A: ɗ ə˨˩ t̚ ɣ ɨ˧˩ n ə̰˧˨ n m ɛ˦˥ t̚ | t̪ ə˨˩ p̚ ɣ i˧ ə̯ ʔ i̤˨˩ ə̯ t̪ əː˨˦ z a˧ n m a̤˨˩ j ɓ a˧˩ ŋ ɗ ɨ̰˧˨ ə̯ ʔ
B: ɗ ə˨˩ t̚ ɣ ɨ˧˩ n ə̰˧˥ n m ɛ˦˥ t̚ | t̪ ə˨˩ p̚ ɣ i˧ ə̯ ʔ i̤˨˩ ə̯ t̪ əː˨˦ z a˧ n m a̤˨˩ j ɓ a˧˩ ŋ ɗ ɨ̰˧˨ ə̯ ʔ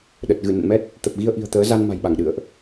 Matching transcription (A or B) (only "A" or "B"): A